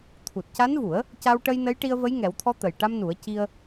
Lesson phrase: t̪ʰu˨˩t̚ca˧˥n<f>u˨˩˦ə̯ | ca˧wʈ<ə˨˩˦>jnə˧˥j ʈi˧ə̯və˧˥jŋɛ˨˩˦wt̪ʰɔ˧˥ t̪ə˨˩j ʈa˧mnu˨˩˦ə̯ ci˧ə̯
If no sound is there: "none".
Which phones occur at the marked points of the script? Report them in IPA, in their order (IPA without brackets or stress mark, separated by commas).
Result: v, ə˧